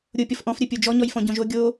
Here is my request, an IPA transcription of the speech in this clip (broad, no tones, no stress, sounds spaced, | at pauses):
ɾʲ o pʲ ɔ f ʔ ɔ̃ f ɾʲ ɜ pʲ o d͡ʒ ɔ ɲ ɔ j f ɔ̃ ɟ ɔ̃ ʒ o ɡʲ o